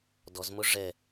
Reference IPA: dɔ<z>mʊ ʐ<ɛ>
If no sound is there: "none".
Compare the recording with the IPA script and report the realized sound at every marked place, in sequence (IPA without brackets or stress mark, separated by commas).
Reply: z, ɛ